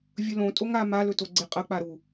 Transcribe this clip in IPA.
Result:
vʲ ɵ l õ tʼ o ŋ a m a l ɵ t o ɡ͡ǀ e qʼ ɐ k͡p a ɾ u

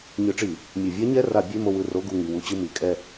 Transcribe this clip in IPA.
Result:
ɲ ɯ˧˩˧ ʈ͡ʂ i˧˩˧ | mʲ ɯ˧˩˧ vʲ a˦˥ ɲ ɛ˧˥˧ r a˧˩˧ bʲ e˧˥˧ m o˦˨ w ɯ˦˨ r o˧˥˧ ɡ u˦˨ ŋ i˩˧˩ w u˦˨ t͡ɕ ɯ˦˨ m i˩˧˩ kʼ ɛ˦˨

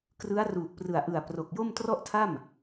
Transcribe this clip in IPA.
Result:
k r ɯ˦˥ a̯ r uː˨˩ k̚ p r ɯ˨˩ a̯ ʔ ɯ˨˩ a̯ p r o˨˩ k̚ j o˥˩ m t r ɔ˥˩ ʔ tʰ a˥˩ m

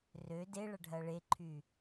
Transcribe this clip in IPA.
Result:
r ø d e ɭ ɐ ɖʱ ɐ ɭ e ǃʰ y

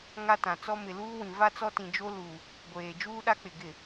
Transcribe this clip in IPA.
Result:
ŋ a˦ t ã˨ t͡s ɔ˦ m ɪ˨ l uː˦ w ĩ˨ v a˦ t͡s ɔ˦ t ĩ˨ d͡ʒ o˦ l uː˨ | ɡʷ eː˨ d͡ʒ uː˦ ɗ a˦ k͡p ɪ˨ ɡ ɪ˨

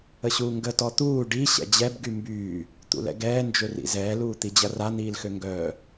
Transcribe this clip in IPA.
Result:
ə ɕ uː ŋ ɡ ə t ɔ t̪ uː ɖ i ɕ ɛ̰ d͡ʑ ɛ b ɡ y m b yː | t̪ ṵ l ɛ̰ ɡ ɛː n d͡ʒ ø r ḭ z ɛː l uː t̪ i d͡ʑ ɐ r a n̪ iː l x ø ŋ ɡ œː

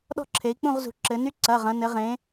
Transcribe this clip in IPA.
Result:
ɗ ɔ̤˦ ǁʰ e˩˧ i̯ k͡p ũ˦˨ ʁ z ṳ˩˧ ǁ ɘ˩˧ n y˦ ǀ ɐ˩˧˩ ʁ ɐ̃˩˧ n ɘ˩˧ ʁ ẽ˩˧

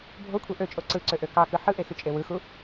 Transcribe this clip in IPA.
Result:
bʱ o kʷʰ e ʔ ø t͡ʃʼ o ǀ ɯ ǀ ø ʔ ø k ɑ k ɯ ħ ɯ ʔ e x y t͡ʃʼ e w ɯ x u

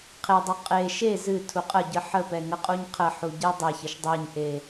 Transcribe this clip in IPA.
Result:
qʰ e dˤ u qʼ e ʃ e z ɨ tʰ u qʼ ə ɟ ɨ ħ ə p ɛ ŋ ə qʼ u ɲ qʰ ə ħ u ɟ e dˤ e ç ə ʃ dˤ e ɲ ʔ e

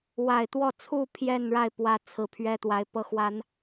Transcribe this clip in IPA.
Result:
w a˨˩ ɪ̯ t̪ w ɔ˥˨ t͡sʰ u˥˨ pʰ j ɛ˥˨ n ɻ a˥˨ ɪ̯ p w ä˨˦ t͡sʰ ɹ̩˨˩ pʰ ɥ ɛ˦ t̪ w a˨˦ ɪ̯ p ɤ˦ x w a˨˦ n

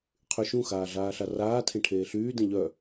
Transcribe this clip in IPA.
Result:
qʰ y ʃ ũ x aː ɮ aː ɬ a r aː tʰ ẽ ʈʰ eː ɬ yː d ẽ ʎ œ

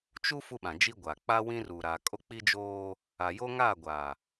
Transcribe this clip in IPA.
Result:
t͡ʃ u˦ f u˦ ɓ ã˨ d͡ʒ i˦ ɡʷ a˨ k͡p a˦ w ĩ˦ r u˨ ɾ a˨ kʼ o˦ k͡p i˦ d͡ʒ oː˦ | a˨ j o˦ ŋ a˦˨ ɡʷ a˨

